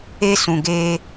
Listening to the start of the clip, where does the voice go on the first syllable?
high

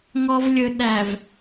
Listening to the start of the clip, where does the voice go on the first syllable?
low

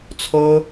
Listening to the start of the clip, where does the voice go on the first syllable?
high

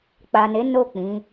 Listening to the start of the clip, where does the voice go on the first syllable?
low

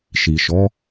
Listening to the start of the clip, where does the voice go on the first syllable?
low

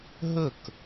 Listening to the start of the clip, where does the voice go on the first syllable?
falling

